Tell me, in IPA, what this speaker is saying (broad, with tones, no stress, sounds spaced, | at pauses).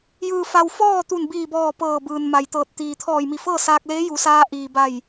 j ɯː˩ f a˩ w f ɔː˥˨ t̪ u˧˩ n b iː˧˩ b ɔː˧˩ p ɤː˧˩ b ɯː˩ n m a˩ j t̪ ɤː˧˩ t̚ t̪ iː˩ t̪ʰ ɔː˧˩ j m i˧˩ f ɤː˥˨ s aː˧ k̚ l eː˧˥ j u˩˧ s aː˧ ʔ iː˩ b a˧˩ j